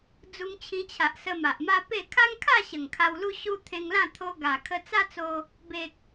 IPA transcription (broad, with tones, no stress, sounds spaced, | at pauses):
d͡z u˧ ŋ t͡ɕʰ ĩ˧ t͡ɕʰ a˨ ʔ s ə˧ m a˨ ʔ m a˦ p e˥˧ kʰ a˦ ŋ kʰ a˥˧ ɕ ə˨˩ ŋ kʰ a˧ w l u˦ ɕ u˧ t̪ʰ ẽ˧ ŋ l ã˥˧ t̪ʰ o˧ ɡ a˨˩ kʰ ə˧ t͡s a˦ t͡s o˧ | b e˨ k̚